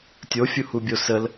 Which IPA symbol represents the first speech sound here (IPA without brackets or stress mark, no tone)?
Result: tʲ